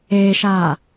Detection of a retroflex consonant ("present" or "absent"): absent